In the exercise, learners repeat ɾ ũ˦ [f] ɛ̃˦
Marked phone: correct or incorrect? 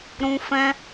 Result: correct